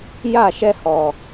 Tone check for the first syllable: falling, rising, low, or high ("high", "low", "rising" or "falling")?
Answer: falling